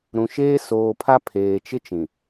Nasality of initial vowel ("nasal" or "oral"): nasal